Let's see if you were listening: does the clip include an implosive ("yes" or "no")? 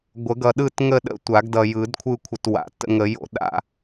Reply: yes